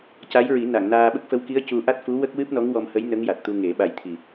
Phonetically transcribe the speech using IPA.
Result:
ca˧˥jɹi˨˩˦ na˨˩˨ŋnaː˧ɓə˦˥k̚ fə˧˥wki˧˥ə̯cu˧ʔa˦˥t̚ fu˧˥wə˦˥k̚ wɨ˦˥p̚nɔ˧˥ŋwɔ˧mhə˧˥j nə˧˥ŋja˨˩t̚t̪u˧ ŋe˨˩˦ ɓa˨˩jt̪ʰi˨˩

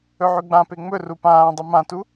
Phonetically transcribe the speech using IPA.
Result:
ɵʕʉɡ͡bãpe ŋ͡mɵru pãː dˤɨmãtu

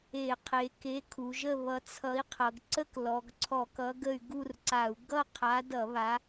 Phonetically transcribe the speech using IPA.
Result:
e˧˩˧qʰe˩˧ke˨˥ kʰu˩˧ʒə˥˨βʌ˨˥ t͡sʰʌ˨˥i̯qʰʌ˩˧ɡ ǀə˥˨k lɔ˩˧ɡǀʰɔ˧˩˧kʌ˨˥ ɡə˥˨y̯ ɡu˥˨rǀa˧˩˧u̯ ɡʌ˥˨qʰa˨˥dʌ˧˩˧ βa˨˥

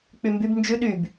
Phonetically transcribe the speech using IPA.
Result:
k͡pymbyb nd͡ʒʉ ɗyb

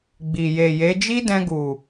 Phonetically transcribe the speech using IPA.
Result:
ɡ͡bi˨ je˨je˨˦ d͡ʒi˦dɛ̃˧ɡu˨

